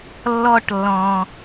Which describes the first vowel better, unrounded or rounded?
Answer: rounded